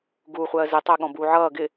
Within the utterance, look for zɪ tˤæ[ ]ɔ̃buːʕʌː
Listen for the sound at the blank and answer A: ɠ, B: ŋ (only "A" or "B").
A